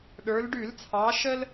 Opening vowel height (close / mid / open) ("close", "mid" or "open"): mid